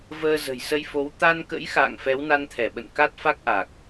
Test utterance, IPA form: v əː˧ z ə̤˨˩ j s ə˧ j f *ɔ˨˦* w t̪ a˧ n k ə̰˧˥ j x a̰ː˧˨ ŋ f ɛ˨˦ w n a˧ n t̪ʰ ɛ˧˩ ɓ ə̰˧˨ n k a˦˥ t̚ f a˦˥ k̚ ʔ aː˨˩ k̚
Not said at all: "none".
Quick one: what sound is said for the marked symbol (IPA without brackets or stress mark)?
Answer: o˨˦